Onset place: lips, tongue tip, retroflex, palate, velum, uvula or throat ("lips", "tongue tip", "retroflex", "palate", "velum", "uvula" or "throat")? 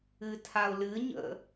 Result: tongue tip